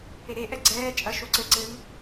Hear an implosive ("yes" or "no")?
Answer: no